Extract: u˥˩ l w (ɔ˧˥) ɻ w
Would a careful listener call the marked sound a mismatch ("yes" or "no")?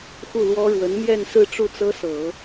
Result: yes